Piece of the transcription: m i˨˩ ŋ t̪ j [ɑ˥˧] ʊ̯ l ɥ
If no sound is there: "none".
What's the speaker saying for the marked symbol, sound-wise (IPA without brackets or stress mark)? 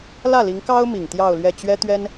ɑ˥˧